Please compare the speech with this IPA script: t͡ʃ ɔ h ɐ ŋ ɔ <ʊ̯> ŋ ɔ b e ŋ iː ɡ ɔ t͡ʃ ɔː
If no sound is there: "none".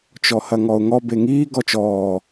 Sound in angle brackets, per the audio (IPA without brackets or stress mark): ʊ̯